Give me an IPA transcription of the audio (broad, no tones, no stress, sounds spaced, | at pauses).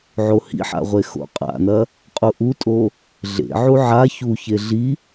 ʕ o h ḭ ħ a̰ ʁʷ e x o̰ qʼ a̰ n ɐ | qʼ u ʔ u tʼ o | ɮ ḛ ʕ u ʕ a ç u ç e ɮ i